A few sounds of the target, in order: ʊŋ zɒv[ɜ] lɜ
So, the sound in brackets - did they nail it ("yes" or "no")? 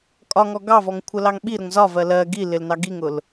yes